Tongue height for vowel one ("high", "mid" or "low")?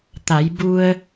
low